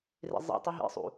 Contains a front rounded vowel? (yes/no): no